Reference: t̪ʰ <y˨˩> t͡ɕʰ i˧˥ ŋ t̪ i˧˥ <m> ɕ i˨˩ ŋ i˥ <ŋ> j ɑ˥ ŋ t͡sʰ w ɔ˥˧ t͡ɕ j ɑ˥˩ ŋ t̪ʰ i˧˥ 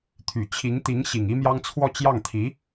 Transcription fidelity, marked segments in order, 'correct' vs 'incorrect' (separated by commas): correct, incorrect, incorrect